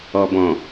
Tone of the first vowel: low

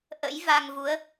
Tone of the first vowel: rising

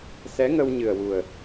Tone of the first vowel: rising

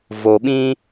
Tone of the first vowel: low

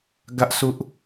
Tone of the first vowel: high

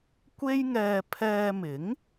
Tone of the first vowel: high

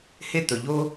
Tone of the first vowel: high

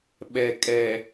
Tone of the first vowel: low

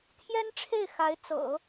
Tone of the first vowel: high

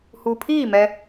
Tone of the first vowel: low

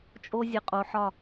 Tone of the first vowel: high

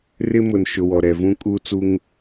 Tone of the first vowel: high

